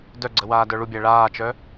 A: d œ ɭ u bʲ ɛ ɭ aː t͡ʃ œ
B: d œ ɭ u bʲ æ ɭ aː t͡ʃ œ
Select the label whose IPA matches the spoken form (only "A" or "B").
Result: B